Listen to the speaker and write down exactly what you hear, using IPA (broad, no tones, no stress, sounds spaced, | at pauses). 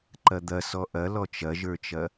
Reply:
ǃ ɐ d̪ ɐ s ɔ ʔ ɐ l ɔ t͡ʃ ɐ ʒ ə˞ t͡ʃ ɐ